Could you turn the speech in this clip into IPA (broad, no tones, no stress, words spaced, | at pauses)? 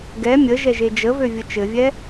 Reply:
ɡɛ mʲəʒɛʒe d͡ʒəvøvʲə t͡ʃɘvʲɛ